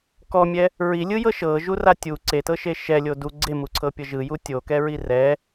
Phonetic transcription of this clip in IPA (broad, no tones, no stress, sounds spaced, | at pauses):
k ɔ mʲ ɛ | ɹ i lʲ ɯ j ɤ ʃ ɤ ʒ u r a tʲ u ǀ e t ɤ ʃ e ʃ ɛ lʲ o d u ɡ͡ǀ e m u ǀʰ ɤ pʲ ɤ ʒ ɯ j u tʲ o k ɛ ɹ i r ɛ